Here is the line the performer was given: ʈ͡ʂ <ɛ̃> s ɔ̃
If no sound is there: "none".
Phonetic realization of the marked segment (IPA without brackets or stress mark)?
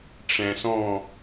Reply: ɛ̃